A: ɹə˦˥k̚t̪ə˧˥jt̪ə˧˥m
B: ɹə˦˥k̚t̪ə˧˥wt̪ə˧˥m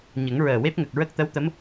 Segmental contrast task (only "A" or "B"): B